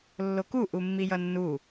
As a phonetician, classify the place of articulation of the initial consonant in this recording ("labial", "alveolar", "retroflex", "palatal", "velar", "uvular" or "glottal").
alveolar